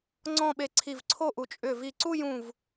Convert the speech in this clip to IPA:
ŋ͡ǀ ɔ̃˥˧ ɓ e˧ ǀʰ i˧˩ v ǀʰ o˥˧ ʔ u˩˧ t͡ʃʼ ʏ˧˩ v i˧˩ ǀ u˥˧ j ũ˧˩ v

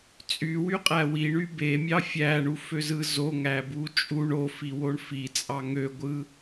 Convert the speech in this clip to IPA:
t͡sʼ y w y qʼ æ w i ɳ y b e mʲ ɑ fʲ æ ɳ u f ø z ɯ z o ŋ æ b u t͡ʃʼ u ɳ o f i w o ɳ f i t͡sʼ ɑ ŋ ø ɡʷ ɯ

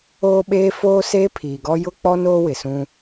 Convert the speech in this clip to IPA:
oː˦ ɓ eː˦ f oː˦ s eː˦ pʰ iː˨ ɡ ɔ˦ j ʊ˦ k͡p ɔ˦ n oː˦ w ɪ˨ s ũ˦

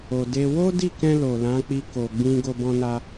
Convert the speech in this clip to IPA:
o˨ d e˧ w o˦ d i˦˨ k ɛ̃˧ l o˨ l ã˨˦ k͡p i˧ k o˨ ɡ͡b ĩ˧ ɡ o˧ b ɔ̃˧ n a˧

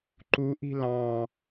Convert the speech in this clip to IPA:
ǃ u ʔ i̤ l ɑ̃

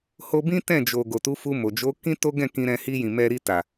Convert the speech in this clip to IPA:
h o˧ b ĩ˦ t ɛ̃˦˨ d͡ʒ o˨ ɡ o˨ t u˨˦ f u˧ m o˨ d͡ʒ o˨˦ k ĩ˦ t o˦ ɡ ɛ̃˦˨ k ĩ˧ ɾ ɛ̃˧ h i˧ j ĩ˨ m ɛ˧ ɾ i˧ t a˨

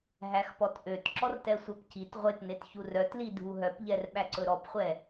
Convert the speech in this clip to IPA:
ɦ æ x p ɔ t ʔ ø t ǁ ɔ r t ɛ sʷ œ p c i t ʁʷ e t n e t ç u r œ t l i dʱ u ɦ œ p ʎ ɛ r ɓ æ ǀ ɵ ɾ ɔ p χʷ ɛ

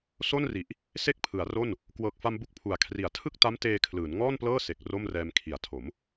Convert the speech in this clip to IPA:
s o˥˩ n r i˨˩ ʔ | s e˥˩ k̚ pʰ ɯ˩˦ a̯ r o˥˩ n | k w ɤː˨˩ k̚ f a˧ m b u˥˩ k̚ pʰ u˨˩ a̯ kʰ r i˩˦ a̯ tʰ ɯ˥˩ k̚ t a˦˥ m t eː˧ kʰ l ɯː˩˦ n ŋ ɔː˥˩ n p l ɤː˥˩ s e˨˩ k̚ r o˥˩ m r ɛː˧ m kʰ i˩˦ a̯ tʰ o˩˦ m

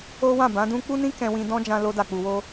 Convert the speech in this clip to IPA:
o˦ w ã˦˨ b ã˨˦ d ũ˦ k͡p u˦ n ĩ˦ k ɛ̃˧ w ĩ˧ d ɔ̃˦ d͡ʒ ã˧ l o˧ d a˨ k͡p u˨ w o˧

